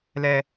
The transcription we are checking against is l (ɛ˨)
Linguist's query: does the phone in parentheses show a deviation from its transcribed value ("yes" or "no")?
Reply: no